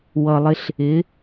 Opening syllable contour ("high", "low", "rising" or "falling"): low